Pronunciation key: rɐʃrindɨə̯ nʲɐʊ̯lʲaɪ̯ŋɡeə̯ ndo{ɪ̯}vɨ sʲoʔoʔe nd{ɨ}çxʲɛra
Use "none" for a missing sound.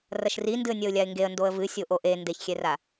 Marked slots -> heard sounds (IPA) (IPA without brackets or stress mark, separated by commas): ə̯, e